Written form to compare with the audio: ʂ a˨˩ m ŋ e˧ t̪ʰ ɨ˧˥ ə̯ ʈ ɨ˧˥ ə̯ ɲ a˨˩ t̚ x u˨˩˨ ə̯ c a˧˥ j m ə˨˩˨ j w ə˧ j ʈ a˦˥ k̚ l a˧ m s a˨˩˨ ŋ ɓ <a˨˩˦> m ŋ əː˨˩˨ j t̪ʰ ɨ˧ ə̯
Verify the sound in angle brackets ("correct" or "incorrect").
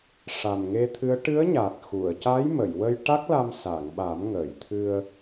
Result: correct